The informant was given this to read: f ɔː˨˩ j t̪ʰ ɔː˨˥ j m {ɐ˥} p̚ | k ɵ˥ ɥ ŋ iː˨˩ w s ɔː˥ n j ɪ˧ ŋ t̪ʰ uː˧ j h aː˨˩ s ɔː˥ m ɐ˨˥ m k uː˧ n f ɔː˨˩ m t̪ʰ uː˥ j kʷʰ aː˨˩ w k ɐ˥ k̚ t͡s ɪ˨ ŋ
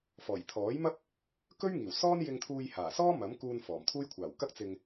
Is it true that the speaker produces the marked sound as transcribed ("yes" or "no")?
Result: yes